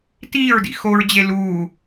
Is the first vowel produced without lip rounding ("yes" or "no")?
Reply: yes